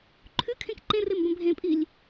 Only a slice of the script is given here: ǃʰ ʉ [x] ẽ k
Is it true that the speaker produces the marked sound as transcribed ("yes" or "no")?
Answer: no